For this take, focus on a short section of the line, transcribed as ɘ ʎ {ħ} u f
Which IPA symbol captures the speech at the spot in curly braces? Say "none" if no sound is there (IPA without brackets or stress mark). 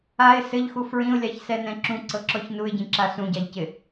x